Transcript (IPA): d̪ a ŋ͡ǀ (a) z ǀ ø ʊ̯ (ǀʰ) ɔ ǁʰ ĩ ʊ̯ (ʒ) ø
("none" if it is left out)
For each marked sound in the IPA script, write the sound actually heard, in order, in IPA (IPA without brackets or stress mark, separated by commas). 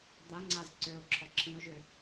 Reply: a, ǁʰ, ʒ